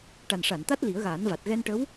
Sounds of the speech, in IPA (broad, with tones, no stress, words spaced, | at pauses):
ʈa˨˩nʂa˨˩˨nt̪a˦˥t̚ li˨˩˦ə̯ɣaː˨˩˦nva˨˩t̚ ɣɛ˧nʈə˧˥w